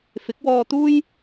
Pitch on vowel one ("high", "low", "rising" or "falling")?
rising